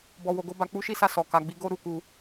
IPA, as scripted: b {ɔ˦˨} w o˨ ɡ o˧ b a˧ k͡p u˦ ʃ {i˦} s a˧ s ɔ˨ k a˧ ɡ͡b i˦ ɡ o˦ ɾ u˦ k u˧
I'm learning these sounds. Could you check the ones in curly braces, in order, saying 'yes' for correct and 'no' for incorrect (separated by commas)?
no, yes